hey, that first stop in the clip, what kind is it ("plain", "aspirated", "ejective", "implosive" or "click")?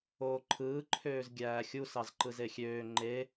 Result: click